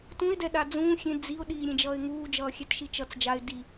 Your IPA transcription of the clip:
t ũ ɪ̯ d ɛ ɗ a d͡z ũː xʲ ẽ d͡z i ʊ̯ ɗ iː ɾʲ ẽ d͡ʒ ʌː ɪ̯ ŋ uː d͡ʒ ʌː xʲ ɛ t ʃ i t͡ʃ ʌ t͡s d͡ʒ a ɪ̯ d i

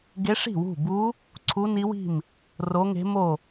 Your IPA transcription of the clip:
ɡ e˧˥ ʂ i̤˥˩ w ṳ˥˩ b u˧˥ | ǀʰ u˧˥ n i˧˥ w i̤˥˩ m | r o˧˥ ŋ e̤˧˥ m o˥˩

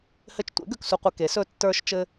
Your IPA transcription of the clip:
h ɘ˧ t͡ʃ tʷ ḛ˩˥ ɡ ø˧ k s u˧ qʷ ɘ˧ k e˩˥ s ɵ˧ tː ə˞˧ ʃ t͡ʃ ɘ˧

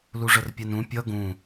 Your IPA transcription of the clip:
l u ʐ ə r pʲ ɛ n ũ pʲ ʌ ɡ ũ

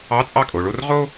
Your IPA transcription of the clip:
ɑ˧˥˧ t͡sʼ ɑ˥˩ kʼ o˩˧ ɭ o˥˧ r ʁ o˥

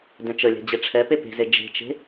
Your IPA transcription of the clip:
d ɛ̃ t͡ʃ ə lʲ ɛ̤ d͡ʑ e ʈ͡ʂʰ ɛ p e p e̤ z e d͡ʒ e̤ t͡ʃ e̤

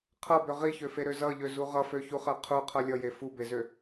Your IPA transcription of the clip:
qʰ ʌ b ø ʁ i ç ø f e ɾ ø z ʌ ʎ ø z u ʁ ʌ f ø ç u χ ɜ qʰ u qʰ ʌ lʲ ʌ j e f u b e z ø

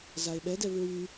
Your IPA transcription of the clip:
z a e̯ ɓ ɛ d ɛ v ɹ y

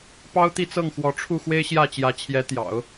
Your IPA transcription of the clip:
p ɑ˥ ʊ̯ t̪ i˥˧ t͡s ɤ˥˩ ŋ x w ɔ˧˥ ʈ͡ʂʰ u˥˩ x w e˥ ɪ̯ ɕ j ä˥˩ t͡ɕ j ä˧˥ t͡ɕʰ j ɛ˧˥ t̪ j ɑ̰˨˩˦ ʊ̯

